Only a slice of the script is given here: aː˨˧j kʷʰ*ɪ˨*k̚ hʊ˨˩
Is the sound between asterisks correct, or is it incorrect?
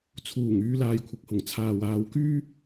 correct